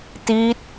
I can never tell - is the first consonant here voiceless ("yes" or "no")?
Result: yes